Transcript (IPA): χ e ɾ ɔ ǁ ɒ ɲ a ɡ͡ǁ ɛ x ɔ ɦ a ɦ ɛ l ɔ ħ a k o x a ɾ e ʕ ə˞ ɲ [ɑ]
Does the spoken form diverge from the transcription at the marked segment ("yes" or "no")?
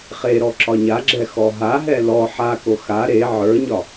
yes